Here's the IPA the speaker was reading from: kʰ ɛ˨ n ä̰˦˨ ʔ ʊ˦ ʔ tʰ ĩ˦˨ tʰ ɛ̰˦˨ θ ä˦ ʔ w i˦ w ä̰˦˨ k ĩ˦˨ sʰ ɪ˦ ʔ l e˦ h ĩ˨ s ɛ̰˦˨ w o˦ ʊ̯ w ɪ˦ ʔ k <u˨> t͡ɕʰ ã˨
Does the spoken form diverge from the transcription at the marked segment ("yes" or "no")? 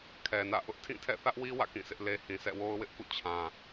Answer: yes